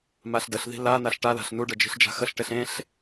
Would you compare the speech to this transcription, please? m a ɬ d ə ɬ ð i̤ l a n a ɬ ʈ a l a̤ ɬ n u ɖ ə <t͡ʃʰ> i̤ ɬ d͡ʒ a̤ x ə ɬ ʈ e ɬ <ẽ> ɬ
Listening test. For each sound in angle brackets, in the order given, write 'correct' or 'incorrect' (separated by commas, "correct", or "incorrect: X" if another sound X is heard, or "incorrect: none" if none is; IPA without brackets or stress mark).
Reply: incorrect: d͡ʒ, correct